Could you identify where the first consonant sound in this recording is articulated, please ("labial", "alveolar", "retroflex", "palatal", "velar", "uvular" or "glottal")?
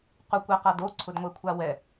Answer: uvular